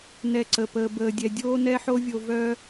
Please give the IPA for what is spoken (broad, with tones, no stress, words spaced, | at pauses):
nɛ˧ǀə˨pəː˧ bəː˧dʲɛ˧ dʲoː˦nɛ˦ħo˦vʲo˧ vœː˦